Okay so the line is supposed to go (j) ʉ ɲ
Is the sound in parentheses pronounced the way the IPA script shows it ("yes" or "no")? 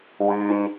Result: no